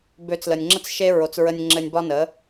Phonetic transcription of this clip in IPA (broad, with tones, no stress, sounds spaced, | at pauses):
b ø˨˦ t͡s l ə˨ nʲ ŋ͡ǁ ə˦ t͡s ʃ e˧ ɹ o˨ t͡s ɹ ə˧ nʲ ŋ͡ǁ ɘ˧ nʲ b ɒ˦ n ə˨˦